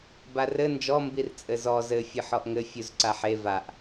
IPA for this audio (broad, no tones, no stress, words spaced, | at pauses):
barɘ nd͡ʒɔ mbirt͡sʼɘzɔ zɘ fʲɨħɔʔŋɘ fʲuzǀaħe vaʔ